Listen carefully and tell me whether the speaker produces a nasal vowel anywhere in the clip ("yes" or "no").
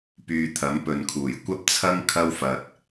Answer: no